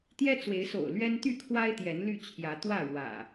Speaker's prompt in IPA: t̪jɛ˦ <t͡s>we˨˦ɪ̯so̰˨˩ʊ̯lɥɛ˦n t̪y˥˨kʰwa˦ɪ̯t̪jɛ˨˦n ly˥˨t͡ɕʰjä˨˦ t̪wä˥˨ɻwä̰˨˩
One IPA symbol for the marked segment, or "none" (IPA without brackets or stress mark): t͡s